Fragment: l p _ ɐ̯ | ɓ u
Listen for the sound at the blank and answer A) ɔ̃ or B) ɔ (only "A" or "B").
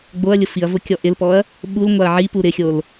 B